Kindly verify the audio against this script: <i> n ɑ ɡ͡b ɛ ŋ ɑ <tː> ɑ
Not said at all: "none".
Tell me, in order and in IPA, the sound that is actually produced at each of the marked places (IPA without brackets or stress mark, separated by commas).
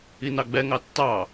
i, tː